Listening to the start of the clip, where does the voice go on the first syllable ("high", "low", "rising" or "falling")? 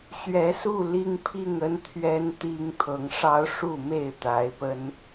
rising